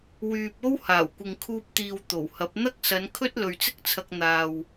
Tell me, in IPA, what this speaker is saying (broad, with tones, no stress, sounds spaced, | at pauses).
w yː˨ p̚ o˥ w h aː˨˩ w kʷ ɪ˨ ŋ kʰ uː˧ p̚ t̪ iː˨ w t̪ o˨˩ w h ɐ˨˥ p̚ n̪ ɐ˥ k̚ s ɐ˨˧ n kʰ ɵ˥ t̚ l ɵ˨ ɥ t͡s ɪ˥ k̚ t͡sʰ ɐ˧ k̚ n̪ aː˨ w